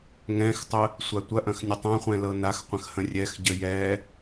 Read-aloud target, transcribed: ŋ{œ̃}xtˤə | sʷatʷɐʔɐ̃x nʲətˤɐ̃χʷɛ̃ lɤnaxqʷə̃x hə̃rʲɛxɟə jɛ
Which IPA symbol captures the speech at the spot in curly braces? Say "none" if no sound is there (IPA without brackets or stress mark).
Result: ɛ̃